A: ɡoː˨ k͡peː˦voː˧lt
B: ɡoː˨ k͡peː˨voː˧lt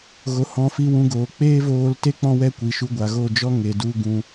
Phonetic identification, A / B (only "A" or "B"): A